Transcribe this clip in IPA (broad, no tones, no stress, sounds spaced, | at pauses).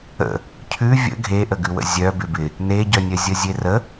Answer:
ə̰ | cʰ ʉ vʲ ə̰ ɡʱ e ʔ ə ɡ ʉ w ə̰ zʲ œ b ɪ b ɪ | n e ɟ œ nʲ œ zʲ ə zʲ e r ə